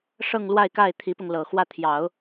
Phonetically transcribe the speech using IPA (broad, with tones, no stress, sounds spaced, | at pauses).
ʂ ɤ˥˧ ŋ l w a˥˧ ɪ̯ k a˥˩ ɪ̯ t̪ʰ i˧˥ p ʊ˧ ŋ l ɤ˨˩ x w ä˥˩ t̪ʰ j ɑ˨˩˦ ʊ̯